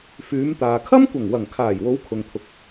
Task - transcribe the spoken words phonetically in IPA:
f yː˨˧ m t̪ aː˨ kʰ ɐ˥ m kʷ ɐ˨˩ ŋ w ɐ˨˩ ŋ kʰ aː˨˩ j w o˨˧ w kʰ ʊ˨ ŋ t̪ʰ ʊ˨ k̚

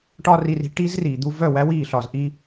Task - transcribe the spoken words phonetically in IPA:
ʈ ɒ˦ r i˧ r i̤˧ ʈ i˦ z r iː˨ d̪ u˦ v œ˦˨ w æ˦ w iː˦˨ ɬ ɒ˨ z ʔ i˦

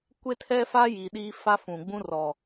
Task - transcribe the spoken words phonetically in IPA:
kʷ e˦ tʰ ɛ˦ f a˦ j i˨ ɗ iː˦ f a˦ f ũ˨ ɡ͡b ũ˦ r ɔ˨

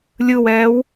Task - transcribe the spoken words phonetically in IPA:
lʲ ɯ w ɛː w

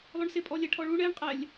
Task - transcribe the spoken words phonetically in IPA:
lˠ ʊ ɳ s ɪ pʼ ɔ lʲ ɛ ʈʰ ɔ ɭ u ɳ ɛ ɳ qʼ ɛ lʲ

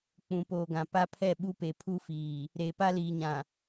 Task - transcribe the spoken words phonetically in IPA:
k͡p ũ˨ p oː˨ ɡ ã˨ p a˦ pʰ ɛ˦˨ ɓ u˦ p e˨ pʰ u˦ f iː˨ | ɾ e˨ p a˦ l iː˨ ɲ ã˨

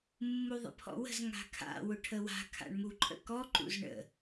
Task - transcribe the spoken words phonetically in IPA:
mː u ðˤ ə̰ pʰ ɔ̰ w ə̤ z ŋ a̤ kʰ a̰ w ʊ ʈʰ ə w a̤ kʰ a̰ ɳ m u ǃʼ ə̰ k ɔ ǃ ṵ z ɳ ə̰

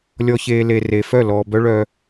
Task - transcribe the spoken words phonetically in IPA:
lʲ ɔ˨ ç eː˨ l e˨ r e˨ f œ˦˨ l ɔː˨ b œ˦ ɭ œ˦

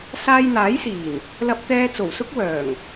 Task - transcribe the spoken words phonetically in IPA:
s aː˧ j n̪ aː˨˥ j s iː˨˩ n | l ɐ˧ p̚ t̪ ɛː˧ t͡s o˨˩ w s ʊ˥ k̚ w œː˨˩ ŋ

